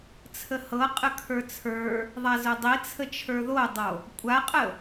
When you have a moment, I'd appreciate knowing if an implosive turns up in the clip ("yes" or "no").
no